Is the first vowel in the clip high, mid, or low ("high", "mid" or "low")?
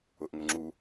high